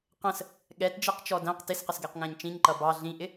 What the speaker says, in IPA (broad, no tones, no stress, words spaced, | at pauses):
qə̃s | ɠɛtd͡ʒiqt͡ʃɔ dæ̃q tɪsqəsɡɛqŋæ̃ɲ t͡ʃĩɲǃʌ bɑ ɮĩʔɪ